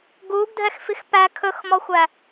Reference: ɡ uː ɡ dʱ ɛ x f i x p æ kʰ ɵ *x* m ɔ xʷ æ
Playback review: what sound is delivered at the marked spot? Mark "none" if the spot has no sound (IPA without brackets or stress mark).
x